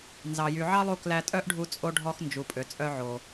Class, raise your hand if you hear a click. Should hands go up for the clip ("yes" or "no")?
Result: no